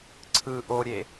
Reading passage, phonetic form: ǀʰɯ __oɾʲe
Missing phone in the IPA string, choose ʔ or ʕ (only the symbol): ʔ